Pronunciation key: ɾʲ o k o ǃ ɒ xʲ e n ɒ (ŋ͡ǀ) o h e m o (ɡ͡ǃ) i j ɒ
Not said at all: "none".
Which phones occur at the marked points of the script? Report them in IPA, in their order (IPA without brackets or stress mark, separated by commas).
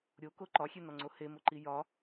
ŋ͡ǀ, ǃ